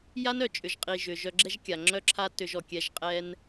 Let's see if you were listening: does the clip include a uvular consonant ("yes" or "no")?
yes